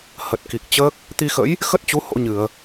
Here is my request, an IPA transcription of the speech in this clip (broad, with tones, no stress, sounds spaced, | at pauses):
h ə˨˩ t̚ k i˨˩ k̚ t͡ɕ əː˦˥ k̚ | t̪ i˧ x ə̰˧˥ j | x ə˦˥ t̚ t͡ɕ u˨˦ h o̰˧˥ ɲ ɨ˧˩˨ ə̯